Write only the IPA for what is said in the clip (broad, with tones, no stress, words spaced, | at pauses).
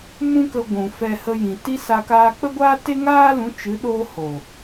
mũ˦kə˧ ɡʷũ˨fɛ˧ hə˧jĩ˨ti˦sa˧ kaː˧k͡pə˦ɡʷaː˦ te˦ŋaː˦lũ˨˦ t͡ʃɨ˨˦ɗoː˧ ho˨